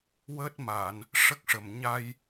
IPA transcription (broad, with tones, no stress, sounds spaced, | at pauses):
w əː˦˥ t̚ m a˨˩˨ n | ʂ ə˦˥ k̚ ʂ ə˨˩ m ɲ a˧ j